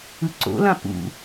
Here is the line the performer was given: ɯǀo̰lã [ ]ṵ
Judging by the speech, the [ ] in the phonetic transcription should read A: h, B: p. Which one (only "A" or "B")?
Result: B